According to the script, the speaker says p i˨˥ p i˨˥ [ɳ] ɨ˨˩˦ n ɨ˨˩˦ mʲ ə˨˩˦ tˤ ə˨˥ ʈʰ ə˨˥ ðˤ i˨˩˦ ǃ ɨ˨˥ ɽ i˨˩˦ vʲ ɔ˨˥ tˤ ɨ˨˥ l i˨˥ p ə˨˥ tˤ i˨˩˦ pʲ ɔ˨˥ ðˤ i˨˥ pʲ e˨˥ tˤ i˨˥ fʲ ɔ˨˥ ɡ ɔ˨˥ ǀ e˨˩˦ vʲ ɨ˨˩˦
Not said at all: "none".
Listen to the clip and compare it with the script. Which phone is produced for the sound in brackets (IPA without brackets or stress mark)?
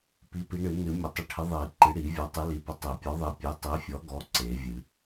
ɳ